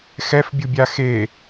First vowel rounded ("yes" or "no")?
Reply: no